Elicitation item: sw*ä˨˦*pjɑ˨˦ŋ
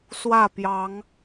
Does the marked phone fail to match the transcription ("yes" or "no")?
yes